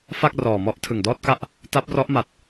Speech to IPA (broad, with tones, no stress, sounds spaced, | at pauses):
f a˥˩ k̚ r ɔː˨˩ m ɔ˦˥ ʔ tʰ ɯ˨˩ ŋ d ɔː˥˩ t̚ k a˥˩ ʔ | t a˦˥ p̚ r ɔ˦˥ ʔ m a˨˩ t̚